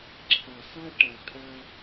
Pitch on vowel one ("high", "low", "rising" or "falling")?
low